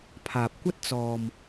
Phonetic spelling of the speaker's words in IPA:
pʰ aː˨ p̚ kʷ ɐ˥ t̚ t͡s ɔː˨ m

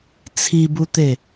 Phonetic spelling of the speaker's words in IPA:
t͡sʰ i b u t̪ e

